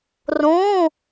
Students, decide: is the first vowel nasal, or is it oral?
nasal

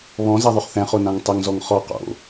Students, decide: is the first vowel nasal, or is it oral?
nasal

